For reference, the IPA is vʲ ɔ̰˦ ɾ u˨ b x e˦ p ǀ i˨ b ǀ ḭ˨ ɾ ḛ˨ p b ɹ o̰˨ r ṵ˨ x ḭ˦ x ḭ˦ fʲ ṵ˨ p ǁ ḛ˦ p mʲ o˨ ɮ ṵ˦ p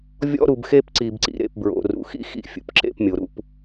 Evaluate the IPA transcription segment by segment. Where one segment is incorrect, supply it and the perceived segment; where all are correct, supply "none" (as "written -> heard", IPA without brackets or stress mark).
ɮ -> ɾ